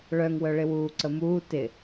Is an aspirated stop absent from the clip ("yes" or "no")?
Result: yes